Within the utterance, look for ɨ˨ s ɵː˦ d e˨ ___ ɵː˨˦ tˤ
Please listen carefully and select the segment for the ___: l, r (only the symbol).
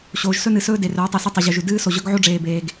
r